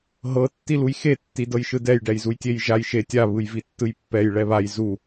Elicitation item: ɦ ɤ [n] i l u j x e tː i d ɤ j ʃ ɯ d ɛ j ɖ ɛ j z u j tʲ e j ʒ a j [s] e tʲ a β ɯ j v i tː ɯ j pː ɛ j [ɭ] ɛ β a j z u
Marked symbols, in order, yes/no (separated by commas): no, no, yes